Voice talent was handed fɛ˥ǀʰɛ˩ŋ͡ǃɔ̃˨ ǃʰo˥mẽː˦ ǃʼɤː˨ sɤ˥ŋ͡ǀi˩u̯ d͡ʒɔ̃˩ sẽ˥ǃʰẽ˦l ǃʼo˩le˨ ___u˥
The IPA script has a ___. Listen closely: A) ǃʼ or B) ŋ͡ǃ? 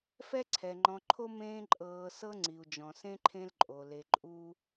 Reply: A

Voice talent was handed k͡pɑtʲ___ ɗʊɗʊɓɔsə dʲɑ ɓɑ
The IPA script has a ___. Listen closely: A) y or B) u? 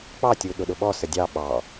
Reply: B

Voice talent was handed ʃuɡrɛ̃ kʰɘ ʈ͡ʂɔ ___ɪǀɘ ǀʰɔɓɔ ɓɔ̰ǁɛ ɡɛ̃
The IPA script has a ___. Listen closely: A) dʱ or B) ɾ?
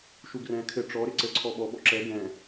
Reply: B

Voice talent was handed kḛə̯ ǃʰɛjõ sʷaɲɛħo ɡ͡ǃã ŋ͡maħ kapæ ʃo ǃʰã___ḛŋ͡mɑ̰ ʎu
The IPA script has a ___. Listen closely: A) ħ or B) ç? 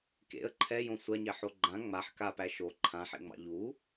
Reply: A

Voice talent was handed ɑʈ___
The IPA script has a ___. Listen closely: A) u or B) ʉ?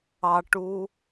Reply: A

